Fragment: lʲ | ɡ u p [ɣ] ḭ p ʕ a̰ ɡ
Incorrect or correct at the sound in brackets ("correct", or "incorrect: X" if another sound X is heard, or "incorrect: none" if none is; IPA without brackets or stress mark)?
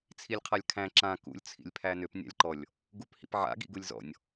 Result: incorrect: h